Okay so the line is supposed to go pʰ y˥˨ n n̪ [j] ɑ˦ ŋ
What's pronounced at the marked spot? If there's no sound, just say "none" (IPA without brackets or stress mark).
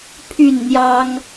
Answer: j